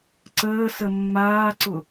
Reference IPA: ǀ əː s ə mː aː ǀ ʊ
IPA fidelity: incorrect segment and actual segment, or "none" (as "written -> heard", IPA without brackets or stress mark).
none